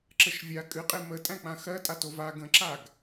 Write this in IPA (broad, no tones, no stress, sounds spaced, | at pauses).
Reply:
ǁ ə ʃ vʲ a kʼ ɨ qʼ e m ə tʼ æ̃ k͡p ã x ɜ tʼ a t o v a ɡ ə̃ ǁ a ɡ